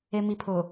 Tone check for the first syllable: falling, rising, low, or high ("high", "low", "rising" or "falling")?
low